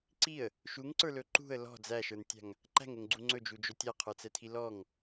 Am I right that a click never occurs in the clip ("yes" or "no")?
no